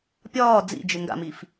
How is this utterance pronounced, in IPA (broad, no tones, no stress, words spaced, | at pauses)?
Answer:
pʲɒː d͡zḭd͡ʒɪ ŋɡa̰mif